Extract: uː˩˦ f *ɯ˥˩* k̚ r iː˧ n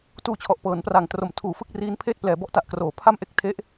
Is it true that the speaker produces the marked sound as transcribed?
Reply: yes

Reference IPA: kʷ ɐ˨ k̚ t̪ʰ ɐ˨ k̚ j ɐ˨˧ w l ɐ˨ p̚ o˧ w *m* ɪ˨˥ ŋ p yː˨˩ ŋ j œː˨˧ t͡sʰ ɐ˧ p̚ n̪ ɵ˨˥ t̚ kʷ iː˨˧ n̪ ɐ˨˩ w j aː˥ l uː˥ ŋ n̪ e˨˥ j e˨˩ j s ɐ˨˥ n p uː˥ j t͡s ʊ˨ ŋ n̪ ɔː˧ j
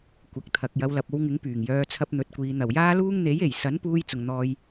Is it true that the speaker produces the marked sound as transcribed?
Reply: no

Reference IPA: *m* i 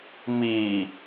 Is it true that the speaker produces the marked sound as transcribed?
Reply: yes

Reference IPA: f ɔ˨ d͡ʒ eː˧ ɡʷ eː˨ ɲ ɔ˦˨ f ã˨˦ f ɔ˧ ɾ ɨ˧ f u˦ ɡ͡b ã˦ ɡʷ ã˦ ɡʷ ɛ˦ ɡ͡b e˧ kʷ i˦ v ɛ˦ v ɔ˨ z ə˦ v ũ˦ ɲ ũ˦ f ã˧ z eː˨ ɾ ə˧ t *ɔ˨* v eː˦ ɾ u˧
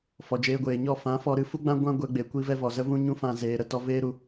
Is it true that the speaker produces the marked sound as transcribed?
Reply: no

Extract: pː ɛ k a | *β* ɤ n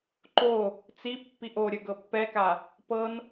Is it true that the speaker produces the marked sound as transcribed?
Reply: no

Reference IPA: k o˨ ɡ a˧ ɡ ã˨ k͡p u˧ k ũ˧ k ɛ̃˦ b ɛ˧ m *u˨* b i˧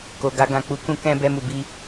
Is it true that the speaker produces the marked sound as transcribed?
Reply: yes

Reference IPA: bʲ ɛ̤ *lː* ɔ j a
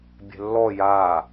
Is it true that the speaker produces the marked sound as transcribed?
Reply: yes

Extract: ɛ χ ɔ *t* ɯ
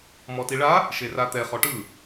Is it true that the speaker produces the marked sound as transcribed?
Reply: no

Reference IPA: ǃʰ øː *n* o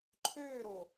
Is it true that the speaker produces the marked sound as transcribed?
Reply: no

